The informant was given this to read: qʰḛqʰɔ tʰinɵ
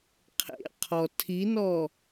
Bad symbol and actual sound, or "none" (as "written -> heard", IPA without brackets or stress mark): ɵ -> ɔ